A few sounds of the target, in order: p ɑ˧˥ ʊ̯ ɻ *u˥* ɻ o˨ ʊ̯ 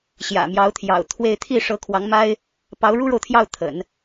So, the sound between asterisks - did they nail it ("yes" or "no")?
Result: yes